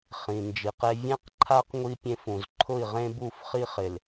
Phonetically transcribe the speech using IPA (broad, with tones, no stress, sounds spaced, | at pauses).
χ ĩ˨ n d͡ʒ i˨˦ q e˦ vʲ ẽ˦ q ǃʰ a˦ q ŋʷ i˦ pʲ ẽ˦ f ũ˨ z ǃʰ ʊ˦˨ i̯ ʁ ẽ˦ b u˦˨ f χ i˦ χ ɪ˨ l